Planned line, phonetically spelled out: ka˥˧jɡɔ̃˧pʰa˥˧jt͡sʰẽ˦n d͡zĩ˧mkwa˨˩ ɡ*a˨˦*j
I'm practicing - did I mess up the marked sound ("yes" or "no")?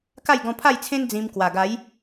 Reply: no